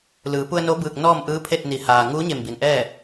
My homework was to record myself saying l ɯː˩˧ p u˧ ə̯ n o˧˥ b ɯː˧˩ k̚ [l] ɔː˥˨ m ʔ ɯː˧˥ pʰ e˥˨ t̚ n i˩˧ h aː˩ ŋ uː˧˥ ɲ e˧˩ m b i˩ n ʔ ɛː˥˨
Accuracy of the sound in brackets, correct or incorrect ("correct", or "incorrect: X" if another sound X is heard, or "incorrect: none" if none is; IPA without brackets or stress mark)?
incorrect: n